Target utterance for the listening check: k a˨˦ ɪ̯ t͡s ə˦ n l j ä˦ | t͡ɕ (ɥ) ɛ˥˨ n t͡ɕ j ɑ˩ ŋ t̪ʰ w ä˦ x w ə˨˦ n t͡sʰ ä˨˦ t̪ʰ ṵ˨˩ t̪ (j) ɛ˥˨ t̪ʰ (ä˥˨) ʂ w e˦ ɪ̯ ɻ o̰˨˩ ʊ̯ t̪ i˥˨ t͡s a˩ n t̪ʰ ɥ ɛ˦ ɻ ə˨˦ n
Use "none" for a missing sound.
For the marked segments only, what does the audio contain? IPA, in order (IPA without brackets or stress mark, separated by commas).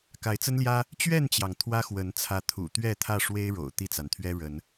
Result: ɥ, ɥ, ä˥˨